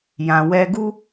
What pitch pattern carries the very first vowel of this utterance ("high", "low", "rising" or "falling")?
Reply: low